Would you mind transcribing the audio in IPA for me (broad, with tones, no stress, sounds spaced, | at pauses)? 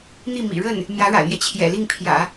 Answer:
n̪ i˥˩ m ḭ˨˩ ɻ ə˥˩ n | m j ä˧˥ ɻ a̰˨˩ ɪ̯ m j ɛ˦ t͡ɕʰ j ɛ̰˨˩ l i˥˩ ŋ pʰ j ä̰˨˩˦